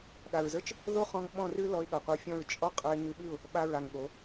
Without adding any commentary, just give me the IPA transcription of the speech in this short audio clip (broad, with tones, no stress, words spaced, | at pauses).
ɠa˨ɹzə˞˦t͡ʃ | ðo˦χɔ̃˧ŋ ɓɔ̃˦˨rʉ˦ lɔ˧ɪ̯ɠʌ˨ qʷə˞˧fʲɔ̃˦˨ɹ t͡ʃʼɔ˦ qʼə˞˧ɪ̯ŋʉ˧ɓʉ˦˨ʊ̯ | ɓa˧ɹa˨ŋɠo˨˦